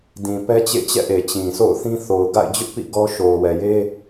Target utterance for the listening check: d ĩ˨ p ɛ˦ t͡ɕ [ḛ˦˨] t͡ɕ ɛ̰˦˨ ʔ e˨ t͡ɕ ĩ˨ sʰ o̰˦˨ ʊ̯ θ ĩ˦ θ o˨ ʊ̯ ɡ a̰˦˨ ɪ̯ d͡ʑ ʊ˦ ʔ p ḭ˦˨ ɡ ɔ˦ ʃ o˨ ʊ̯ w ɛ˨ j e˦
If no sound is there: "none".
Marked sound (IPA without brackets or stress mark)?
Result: ḛ˦˨